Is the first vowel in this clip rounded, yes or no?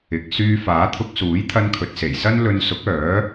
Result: no